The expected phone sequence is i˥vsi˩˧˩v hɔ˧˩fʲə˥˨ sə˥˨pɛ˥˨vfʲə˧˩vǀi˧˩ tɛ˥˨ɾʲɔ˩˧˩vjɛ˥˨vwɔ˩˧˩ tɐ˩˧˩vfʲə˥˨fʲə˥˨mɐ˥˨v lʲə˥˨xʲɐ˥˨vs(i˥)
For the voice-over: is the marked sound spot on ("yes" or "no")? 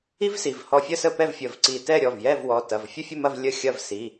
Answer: no